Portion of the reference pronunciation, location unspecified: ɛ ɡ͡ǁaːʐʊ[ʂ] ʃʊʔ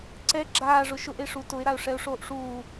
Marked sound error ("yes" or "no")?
yes